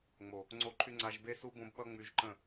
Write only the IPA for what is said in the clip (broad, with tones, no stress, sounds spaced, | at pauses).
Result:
ŋ͡m o˨ | ŋ͡ǀ o˦ ǃʰ y˦ ŋ͡ǀ a˧ ʒ b e˦ s u˦ b õ˧ b ɓ ʌ˧ ŋ͡m y˧ ʒ ǃ ə̃˦˨